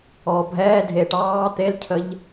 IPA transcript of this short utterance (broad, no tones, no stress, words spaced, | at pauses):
ɔːbʱɛːdʱeːʈ ɑː t̪elcʰəʎ